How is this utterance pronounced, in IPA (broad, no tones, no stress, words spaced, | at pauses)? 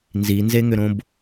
nzinzeŋʏɾõb